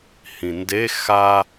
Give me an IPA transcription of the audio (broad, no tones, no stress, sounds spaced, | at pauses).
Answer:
h ĩ n d e x a